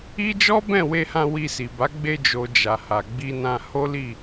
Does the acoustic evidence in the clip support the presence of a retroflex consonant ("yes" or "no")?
no